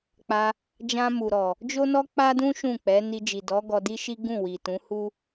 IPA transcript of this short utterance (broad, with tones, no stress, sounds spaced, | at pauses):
k͡p a˧ | d͡ʒ ã˧ m u˨ ɾ ɔ˨ | d͡ʒ o˦ n ɔ˦ k͡p a˦ d ũ˦ ʃ ũ˦˨ k͡p ɛ˨˦ n i˧ d͡ʒ i˨ d ɔ˨˦ ɡ ɔ˧ d i˦ ʃ i˦ ɡ ũ˦˨ w i˨ t ũ˨˦ h u˦